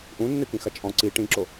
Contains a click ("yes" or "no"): yes